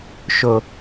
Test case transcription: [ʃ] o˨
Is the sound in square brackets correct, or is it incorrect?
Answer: correct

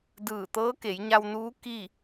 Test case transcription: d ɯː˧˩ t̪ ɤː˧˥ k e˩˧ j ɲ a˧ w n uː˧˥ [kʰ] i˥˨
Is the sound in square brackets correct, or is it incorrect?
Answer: incorrect: k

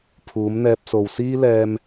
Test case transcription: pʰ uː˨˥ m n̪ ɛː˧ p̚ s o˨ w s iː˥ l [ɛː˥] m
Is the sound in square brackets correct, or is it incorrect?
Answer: incorrect: ɛː˧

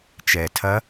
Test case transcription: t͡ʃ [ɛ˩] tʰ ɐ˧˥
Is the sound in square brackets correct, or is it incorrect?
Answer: correct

